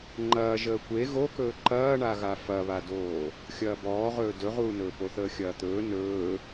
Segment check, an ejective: absent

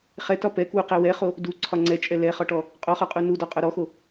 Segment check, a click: present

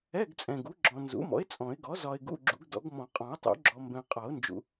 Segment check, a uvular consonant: present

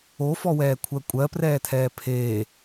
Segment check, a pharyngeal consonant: absent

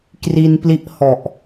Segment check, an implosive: absent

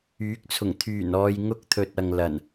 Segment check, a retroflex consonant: absent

